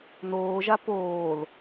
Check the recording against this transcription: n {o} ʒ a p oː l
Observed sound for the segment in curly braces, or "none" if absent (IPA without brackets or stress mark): oː